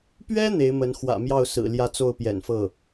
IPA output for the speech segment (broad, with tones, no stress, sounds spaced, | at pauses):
p ɥ ɛ˥ n̪ e˧˥ ɪ̯ m ə˧˥ n x w ä̰˨˩ m j ɑ˥˩ ʊ̯ s ɹ̩˨˩ l j ä˥˧ t͡s o˥˩ ʊ̯ p j ɛ̰˨˩ n f ɤ˥˩